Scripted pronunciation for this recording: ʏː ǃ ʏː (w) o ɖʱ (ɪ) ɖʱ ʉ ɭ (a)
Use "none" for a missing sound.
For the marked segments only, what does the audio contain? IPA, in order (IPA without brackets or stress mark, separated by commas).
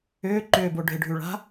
b, ɪ, a̤